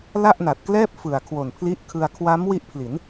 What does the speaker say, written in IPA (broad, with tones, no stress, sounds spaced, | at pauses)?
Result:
l a˥˩ ʔ n a˨˩ t̚ k l ɛː˥˩ p̚ f ɯ˨˩ a̯ kʰ w o˨˩ n pʰ l i˦˥ ʔ kʰ ɯ˧ a̯ kʰ w a˦˥ m w i˦˥ ʔ pʰ l i˩˦ n